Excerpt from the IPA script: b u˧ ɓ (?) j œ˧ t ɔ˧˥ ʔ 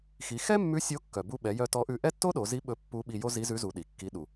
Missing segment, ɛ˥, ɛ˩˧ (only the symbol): ɛ˩˧